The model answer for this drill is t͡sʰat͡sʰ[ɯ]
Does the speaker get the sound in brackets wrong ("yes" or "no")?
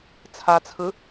no